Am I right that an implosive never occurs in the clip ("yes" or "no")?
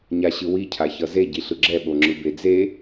no